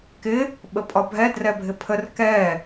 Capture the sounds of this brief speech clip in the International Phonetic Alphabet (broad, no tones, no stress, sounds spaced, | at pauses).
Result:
k ɪ | ɓ ə pʼ ɒ bʱ ɛ d r ɛ bʱ ɪ pʰ ə r k ɛ